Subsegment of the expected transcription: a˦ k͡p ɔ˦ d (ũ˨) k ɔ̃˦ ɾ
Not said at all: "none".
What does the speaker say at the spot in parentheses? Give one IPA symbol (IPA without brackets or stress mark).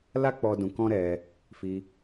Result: ũ˧